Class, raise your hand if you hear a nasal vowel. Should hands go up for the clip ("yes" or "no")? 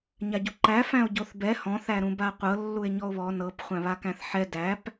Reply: yes